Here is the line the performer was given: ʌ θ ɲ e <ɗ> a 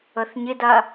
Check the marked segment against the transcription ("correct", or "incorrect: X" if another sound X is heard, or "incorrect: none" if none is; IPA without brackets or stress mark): incorrect: d